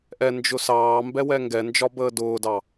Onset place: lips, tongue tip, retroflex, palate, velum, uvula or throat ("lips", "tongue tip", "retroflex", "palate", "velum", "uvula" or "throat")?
throat